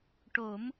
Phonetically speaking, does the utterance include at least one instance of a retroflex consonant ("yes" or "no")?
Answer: yes